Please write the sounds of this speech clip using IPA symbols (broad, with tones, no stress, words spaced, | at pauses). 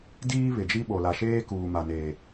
diː˦βɪ˨d͡ʒi˦ ɓo˨la˨ʃeː˦kuː˨ ma˨neː˨